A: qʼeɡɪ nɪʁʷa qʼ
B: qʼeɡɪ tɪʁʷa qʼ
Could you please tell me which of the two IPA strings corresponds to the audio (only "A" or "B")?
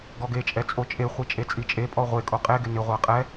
A